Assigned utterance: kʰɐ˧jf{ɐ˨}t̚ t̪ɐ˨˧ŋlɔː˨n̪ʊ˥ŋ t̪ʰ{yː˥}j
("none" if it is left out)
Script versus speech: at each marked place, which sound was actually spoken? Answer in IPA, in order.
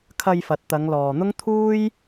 ɐ˨, uː˥

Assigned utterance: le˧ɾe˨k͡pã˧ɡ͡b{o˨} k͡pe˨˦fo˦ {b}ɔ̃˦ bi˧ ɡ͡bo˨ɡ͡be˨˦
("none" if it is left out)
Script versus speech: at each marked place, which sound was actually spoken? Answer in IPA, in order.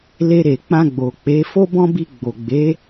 o˨, b

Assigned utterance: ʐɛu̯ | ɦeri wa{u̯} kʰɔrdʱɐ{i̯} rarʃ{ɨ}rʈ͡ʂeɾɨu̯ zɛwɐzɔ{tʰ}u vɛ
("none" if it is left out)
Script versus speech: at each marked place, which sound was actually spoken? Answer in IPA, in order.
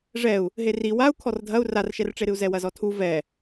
u̯, u̯, ɛ, tʰ

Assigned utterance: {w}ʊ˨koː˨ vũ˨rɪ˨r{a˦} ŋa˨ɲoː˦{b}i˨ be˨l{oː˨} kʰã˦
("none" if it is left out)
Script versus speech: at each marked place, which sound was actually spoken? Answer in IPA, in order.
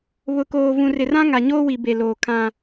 β, ã˦, w, oː˨

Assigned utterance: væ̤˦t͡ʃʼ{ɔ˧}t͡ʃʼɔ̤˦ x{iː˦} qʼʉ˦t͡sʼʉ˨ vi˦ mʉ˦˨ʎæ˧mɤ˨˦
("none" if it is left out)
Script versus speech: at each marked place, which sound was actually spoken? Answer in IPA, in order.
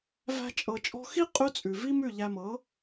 ɤ˧, i˦

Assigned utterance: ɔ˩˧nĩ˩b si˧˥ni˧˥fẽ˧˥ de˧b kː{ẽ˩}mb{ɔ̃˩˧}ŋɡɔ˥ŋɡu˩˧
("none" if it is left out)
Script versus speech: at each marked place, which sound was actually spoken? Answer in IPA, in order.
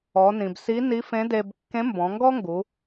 ẽ˧˥, ɔ̃˩˧

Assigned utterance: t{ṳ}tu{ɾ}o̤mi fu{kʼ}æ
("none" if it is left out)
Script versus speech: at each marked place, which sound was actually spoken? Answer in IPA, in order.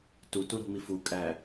u, ɾ, kʼ

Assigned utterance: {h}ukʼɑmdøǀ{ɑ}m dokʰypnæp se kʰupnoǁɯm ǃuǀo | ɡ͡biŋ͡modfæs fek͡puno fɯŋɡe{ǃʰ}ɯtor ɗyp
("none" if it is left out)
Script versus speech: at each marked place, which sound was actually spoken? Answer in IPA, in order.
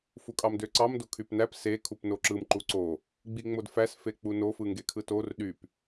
f, ɑ, kʰ

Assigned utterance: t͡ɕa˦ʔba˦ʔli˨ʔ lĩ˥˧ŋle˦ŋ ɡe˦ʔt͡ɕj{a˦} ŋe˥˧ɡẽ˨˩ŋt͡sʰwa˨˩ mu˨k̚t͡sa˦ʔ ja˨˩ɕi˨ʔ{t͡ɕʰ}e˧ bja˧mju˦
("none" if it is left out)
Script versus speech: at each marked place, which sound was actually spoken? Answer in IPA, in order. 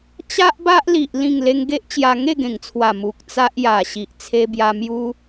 a˧, t͡sʰ

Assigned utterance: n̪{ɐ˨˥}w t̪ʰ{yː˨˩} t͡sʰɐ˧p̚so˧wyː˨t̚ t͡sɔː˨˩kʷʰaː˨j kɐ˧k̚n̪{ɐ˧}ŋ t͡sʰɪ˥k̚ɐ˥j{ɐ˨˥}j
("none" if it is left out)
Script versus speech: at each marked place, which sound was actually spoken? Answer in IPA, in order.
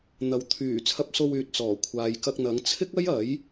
ɐ˨, yː˨˩, ɐ˨˥, ɐ˨˥

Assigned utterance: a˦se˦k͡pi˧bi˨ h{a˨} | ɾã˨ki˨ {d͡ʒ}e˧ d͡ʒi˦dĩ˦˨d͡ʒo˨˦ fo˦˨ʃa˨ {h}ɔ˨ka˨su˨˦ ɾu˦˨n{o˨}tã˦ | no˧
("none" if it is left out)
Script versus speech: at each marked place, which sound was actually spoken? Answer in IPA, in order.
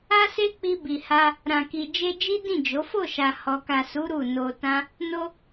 a˧, d͡ʒ, h, o˧

